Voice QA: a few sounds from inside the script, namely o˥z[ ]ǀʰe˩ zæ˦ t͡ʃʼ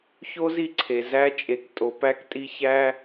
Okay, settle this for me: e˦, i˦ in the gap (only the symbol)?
i˦